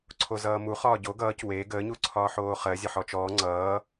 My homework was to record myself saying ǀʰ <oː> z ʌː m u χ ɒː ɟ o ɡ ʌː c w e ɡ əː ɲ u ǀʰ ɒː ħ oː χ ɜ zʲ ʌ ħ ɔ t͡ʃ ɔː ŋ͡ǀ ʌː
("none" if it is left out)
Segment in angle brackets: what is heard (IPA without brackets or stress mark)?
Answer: o